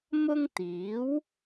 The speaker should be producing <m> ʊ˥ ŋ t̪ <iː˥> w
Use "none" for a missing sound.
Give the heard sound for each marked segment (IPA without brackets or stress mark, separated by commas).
m, iː˨˥